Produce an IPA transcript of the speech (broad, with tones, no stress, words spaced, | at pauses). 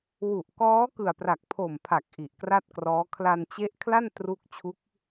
wu˨˩ʔkɔː˦˥ kɯ˨˩a̯pra˨˩k̚ pʰo˨˩mpʰa˨˩k̚ ʔi˨˩ʔkra˥˩t̚krɔː˦˥ kʰla˧nt͡ɕe˦˥ʔkʰla˥˩n tru˥˩k̚ t͡ɕʰu˦˥k̚